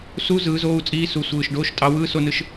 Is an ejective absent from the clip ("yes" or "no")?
no